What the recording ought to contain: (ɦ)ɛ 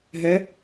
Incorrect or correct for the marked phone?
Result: correct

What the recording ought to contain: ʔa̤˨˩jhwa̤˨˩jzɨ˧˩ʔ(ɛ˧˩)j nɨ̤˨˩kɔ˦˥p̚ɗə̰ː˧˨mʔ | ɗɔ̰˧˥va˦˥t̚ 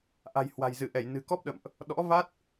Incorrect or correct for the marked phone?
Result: correct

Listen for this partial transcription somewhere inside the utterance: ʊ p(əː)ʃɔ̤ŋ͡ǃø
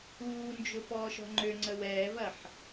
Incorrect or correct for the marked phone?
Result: incorrect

